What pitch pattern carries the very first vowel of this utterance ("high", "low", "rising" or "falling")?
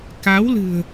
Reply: rising